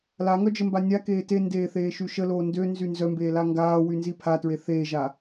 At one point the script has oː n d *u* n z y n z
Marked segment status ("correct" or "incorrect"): incorrect